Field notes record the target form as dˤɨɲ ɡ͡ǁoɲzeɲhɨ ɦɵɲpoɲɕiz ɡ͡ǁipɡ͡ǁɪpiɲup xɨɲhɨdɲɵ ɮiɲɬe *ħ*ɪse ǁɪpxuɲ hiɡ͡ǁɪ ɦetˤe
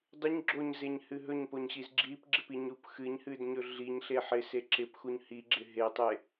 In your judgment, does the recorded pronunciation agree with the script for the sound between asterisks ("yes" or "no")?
yes